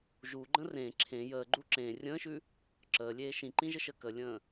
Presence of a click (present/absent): present